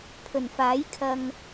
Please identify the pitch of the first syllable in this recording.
low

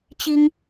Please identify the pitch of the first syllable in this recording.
high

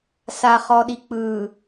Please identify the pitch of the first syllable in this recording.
low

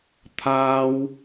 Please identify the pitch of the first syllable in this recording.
high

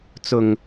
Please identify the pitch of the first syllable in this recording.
low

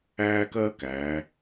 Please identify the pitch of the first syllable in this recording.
high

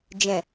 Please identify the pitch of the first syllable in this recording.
low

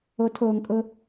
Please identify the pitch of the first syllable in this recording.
rising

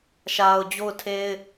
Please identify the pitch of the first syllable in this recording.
low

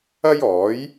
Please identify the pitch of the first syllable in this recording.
high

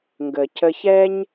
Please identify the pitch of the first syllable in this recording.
low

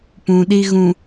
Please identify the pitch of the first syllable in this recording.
low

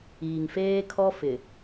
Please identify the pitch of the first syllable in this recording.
low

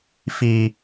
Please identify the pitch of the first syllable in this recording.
high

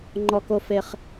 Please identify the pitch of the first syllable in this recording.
high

